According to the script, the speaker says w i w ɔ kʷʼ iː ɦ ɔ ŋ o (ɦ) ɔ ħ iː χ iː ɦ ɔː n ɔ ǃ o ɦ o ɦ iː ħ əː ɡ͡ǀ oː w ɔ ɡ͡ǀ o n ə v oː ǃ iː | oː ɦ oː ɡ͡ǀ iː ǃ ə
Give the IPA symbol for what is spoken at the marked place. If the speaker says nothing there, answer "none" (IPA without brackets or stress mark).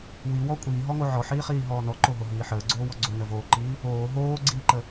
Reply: ʕ